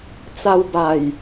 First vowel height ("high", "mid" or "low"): low